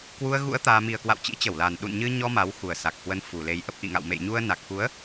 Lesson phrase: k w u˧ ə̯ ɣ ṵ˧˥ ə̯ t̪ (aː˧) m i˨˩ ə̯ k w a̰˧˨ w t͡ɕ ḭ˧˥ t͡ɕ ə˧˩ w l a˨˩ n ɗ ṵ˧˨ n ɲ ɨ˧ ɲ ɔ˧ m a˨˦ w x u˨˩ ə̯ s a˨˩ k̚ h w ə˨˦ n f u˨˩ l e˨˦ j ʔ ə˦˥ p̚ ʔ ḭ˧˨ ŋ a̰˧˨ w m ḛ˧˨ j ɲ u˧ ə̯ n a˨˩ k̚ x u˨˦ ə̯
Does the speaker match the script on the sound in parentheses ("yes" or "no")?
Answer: yes